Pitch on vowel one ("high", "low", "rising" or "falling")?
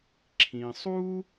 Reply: low